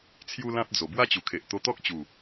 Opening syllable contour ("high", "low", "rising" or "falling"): high